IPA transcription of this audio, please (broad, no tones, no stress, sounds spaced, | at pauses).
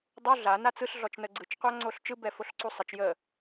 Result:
dˤ u ɮ a n a t͡s ɯ ɬ ɮ ɔ t͡ʃ n ə ɡ͡ǀ ɯ t͡ʃ qʷ a ŋ͡ǀ o ɬ t͡ʃ ɯ b ɛ f o ɬ ǀ u sˤ ə t͡ʃ j ə